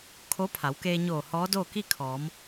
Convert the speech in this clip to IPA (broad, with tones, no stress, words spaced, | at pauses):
kʰo˧˥pʰa˩˧wkeː˧ɲoː˧˩ hɔː˧˥doː˥˨ ki˥˨kʰɔː˩˧m